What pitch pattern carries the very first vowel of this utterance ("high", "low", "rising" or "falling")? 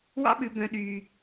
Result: high